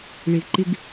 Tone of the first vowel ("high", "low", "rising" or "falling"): low